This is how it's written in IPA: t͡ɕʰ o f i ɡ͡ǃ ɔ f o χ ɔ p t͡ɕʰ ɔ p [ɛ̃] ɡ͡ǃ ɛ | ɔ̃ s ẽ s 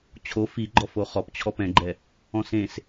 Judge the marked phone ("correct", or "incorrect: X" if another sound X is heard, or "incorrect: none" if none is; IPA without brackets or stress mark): correct